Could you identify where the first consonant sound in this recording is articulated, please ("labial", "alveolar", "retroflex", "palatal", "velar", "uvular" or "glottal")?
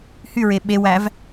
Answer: glottal